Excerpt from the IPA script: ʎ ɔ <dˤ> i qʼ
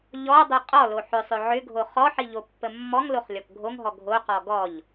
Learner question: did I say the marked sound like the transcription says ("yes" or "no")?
yes